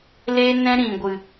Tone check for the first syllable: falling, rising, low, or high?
high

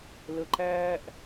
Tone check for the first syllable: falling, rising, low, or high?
low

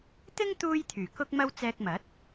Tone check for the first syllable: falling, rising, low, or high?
high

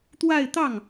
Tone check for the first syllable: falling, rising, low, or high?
falling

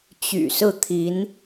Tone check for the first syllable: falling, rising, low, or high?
low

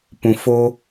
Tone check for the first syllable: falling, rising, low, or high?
low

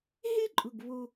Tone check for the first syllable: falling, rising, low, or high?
high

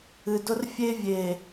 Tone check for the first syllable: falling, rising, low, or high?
low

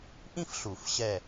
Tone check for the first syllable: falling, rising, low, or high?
high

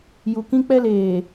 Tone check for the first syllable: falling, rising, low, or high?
low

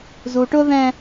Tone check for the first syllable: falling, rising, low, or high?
low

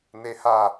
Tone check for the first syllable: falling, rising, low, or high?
high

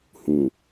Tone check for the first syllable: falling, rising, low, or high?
low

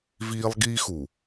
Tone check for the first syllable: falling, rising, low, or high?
high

